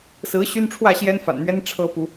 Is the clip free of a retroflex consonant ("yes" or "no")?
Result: no